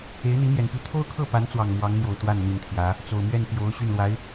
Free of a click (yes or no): yes